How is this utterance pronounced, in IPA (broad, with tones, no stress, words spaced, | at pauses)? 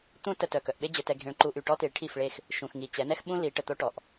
t̪ũ˦ tə˧tœ˨ kœ˨ʔɓe˦d͡ʑø˧ tɛ˧ɡʱẽ˧ɭ ǃu˧ʔy˨ʈɔ˦ ti˨˦ɭʈʰi˦˨fɭe˦˨x | ʃũ˨xŋi˨ t͡ɕɛ˨˦nɛ˦xɓũ˦ li˨˦ʈə˨t̪o˦ʈɔ˨ʔ